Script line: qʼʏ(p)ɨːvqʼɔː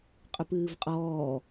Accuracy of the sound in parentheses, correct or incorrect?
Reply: correct